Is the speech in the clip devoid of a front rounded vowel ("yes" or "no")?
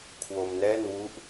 yes